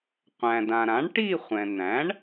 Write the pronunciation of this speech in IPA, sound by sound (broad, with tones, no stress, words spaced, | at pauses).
qʷæ̃˩dã˩ɾã˩˥ɳ ʈi˥˧χʷɛ̃˩ n̪æ̃˩˥ɳ